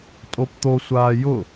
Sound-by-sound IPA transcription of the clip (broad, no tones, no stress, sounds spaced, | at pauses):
tʼ o p t̪ o sʷ aː j ʊ